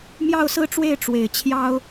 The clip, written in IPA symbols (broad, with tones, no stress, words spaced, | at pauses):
mjɑ˥˧ʊ̯sɹ̩˥˧ʈ͡ʂwe˥˩ɪ̯ ʈ͡ʂwe˨˩ɪ̯t͡ɕʰjɑ˥ʊ̯